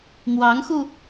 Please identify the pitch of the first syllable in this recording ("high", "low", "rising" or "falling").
rising